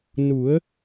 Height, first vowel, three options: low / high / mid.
high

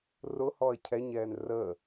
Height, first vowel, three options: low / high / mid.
high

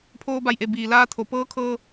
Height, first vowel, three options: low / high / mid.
mid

